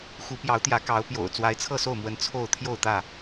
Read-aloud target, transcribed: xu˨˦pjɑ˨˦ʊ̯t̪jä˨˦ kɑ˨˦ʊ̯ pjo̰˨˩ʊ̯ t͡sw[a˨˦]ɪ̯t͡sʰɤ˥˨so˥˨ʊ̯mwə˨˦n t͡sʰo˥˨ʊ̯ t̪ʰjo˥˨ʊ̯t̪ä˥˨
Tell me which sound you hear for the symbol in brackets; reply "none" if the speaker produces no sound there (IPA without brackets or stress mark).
a˨˦